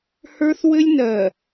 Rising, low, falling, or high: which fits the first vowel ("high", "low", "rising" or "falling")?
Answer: high